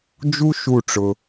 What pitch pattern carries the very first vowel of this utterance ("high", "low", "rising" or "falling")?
high